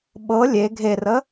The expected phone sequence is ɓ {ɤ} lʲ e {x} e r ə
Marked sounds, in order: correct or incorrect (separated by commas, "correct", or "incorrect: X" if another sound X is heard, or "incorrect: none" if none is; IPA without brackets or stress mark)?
correct, incorrect: ɡʱ